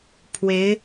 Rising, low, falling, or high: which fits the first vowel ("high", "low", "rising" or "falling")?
rising